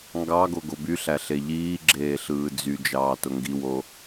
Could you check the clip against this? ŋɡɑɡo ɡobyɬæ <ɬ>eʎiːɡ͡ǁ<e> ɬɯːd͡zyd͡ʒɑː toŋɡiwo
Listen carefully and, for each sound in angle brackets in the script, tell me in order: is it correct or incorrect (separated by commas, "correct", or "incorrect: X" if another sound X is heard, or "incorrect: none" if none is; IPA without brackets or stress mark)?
correct, incorrect: eː